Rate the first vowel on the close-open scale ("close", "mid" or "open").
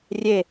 mid